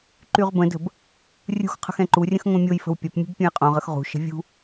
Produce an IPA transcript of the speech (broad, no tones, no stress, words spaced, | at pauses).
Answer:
ǃyʁbə̃də̤b | rʲṳxqʰə̤x ɛ̃ǃurʲə̃x ŋõmʲojfə̤w pʲɐpmʲṳb pʲũjqʼõʁəx ʁṳʃə̤ vʲṳ